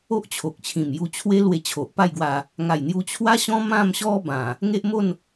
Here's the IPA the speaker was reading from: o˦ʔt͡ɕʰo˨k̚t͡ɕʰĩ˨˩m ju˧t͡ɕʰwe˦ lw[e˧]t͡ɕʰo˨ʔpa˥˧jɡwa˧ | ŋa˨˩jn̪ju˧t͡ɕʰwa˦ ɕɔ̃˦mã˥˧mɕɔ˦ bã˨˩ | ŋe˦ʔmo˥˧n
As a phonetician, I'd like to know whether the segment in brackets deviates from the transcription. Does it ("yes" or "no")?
no